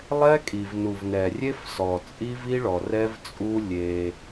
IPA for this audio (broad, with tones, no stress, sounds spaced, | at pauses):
lˠ ɛ˦ kʼ i˨ v n u˨ v n ɛ˨ rʲ e˦ f s ɔ˨ t͡sʼ i˦ v i˦ ɭ ɔ˨ r ɛ˦ v t͡sʼ u˦ lʲ e˦